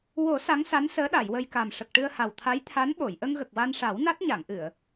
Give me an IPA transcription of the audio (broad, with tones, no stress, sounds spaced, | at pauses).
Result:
w o˨˩˦ s a˧˥ ŋ s a˧˥ n s əː˧˥ ɗ a˨˩˨ j w ə˧ j k a˨˩ m ʂ ə˨˩ k̚ ʈ ɨ˧ ə̯ h a˨˩ w t̪ʰ a˧˥ j t̪ʰ a˧˥ n ɓ o˨˩˨ j ʔ ə˧ ŋ ɣ ə˨˩ k̚ w a˧ n ʂ a˨˩˦ w n a˦˥ t̚ ɲ a˨˩˨ ŋ ʔ ɨ˨˩˨ ə̯